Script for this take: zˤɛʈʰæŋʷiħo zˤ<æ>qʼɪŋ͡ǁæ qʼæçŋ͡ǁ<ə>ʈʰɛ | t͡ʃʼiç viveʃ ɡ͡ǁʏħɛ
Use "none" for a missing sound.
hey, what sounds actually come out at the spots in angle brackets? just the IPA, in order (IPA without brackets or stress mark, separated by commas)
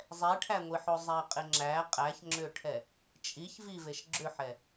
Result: æ, ʏ